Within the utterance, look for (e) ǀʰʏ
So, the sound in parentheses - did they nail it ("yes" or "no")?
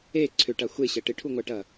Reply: yes